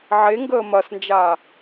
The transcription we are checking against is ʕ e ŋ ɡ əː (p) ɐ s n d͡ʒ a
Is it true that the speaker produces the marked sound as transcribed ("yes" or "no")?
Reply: no